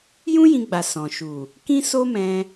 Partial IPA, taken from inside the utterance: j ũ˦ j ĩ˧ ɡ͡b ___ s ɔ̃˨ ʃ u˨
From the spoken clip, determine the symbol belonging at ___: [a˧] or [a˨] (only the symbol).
a˨